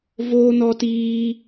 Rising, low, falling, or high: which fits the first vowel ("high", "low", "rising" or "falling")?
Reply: high